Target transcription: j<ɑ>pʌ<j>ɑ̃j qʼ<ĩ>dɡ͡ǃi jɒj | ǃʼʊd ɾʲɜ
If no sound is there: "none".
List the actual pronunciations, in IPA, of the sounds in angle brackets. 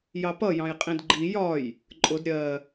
ɑ, j, ĩ

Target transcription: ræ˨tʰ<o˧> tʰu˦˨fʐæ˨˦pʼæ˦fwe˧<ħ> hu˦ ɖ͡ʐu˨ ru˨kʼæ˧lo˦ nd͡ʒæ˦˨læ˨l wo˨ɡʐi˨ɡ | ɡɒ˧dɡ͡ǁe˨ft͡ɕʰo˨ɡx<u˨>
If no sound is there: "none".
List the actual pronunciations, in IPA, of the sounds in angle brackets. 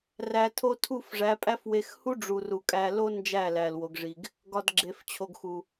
o˧, x, u˨

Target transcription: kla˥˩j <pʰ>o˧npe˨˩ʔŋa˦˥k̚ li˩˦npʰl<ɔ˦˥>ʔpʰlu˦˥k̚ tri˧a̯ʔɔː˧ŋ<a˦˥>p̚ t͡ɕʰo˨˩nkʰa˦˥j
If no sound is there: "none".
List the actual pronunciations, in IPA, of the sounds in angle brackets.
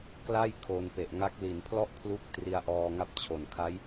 kʰ, ɔ˥˩, a˦˥

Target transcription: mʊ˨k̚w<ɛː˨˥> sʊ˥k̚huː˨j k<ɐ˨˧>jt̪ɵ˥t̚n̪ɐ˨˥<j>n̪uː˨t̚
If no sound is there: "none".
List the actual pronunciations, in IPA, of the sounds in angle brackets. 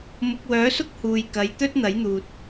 œː˨˥, ɐ˨˧, j

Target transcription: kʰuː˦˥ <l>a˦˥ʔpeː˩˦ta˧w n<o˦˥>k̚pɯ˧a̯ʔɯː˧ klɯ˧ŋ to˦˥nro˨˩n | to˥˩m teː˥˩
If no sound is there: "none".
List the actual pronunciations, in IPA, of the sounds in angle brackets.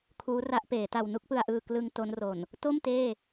r, u˦˥

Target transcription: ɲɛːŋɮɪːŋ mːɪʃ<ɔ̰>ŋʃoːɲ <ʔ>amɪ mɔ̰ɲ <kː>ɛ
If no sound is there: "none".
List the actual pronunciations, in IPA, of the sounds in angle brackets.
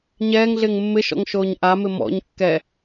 ɔ̰, ʔ, kː

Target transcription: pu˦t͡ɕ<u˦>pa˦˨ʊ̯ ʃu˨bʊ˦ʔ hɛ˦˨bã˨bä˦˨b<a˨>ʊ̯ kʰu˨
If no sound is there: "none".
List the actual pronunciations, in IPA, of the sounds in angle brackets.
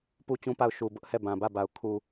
ũ˦, a˨

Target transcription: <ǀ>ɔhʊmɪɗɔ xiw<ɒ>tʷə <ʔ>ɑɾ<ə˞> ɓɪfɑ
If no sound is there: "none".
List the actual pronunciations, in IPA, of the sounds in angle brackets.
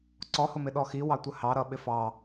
ǀ, ɑ, h, ʌ

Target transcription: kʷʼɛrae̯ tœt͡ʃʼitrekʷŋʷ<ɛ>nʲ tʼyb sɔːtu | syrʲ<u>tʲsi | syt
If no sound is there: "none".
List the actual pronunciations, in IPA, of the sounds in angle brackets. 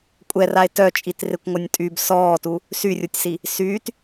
œ, u

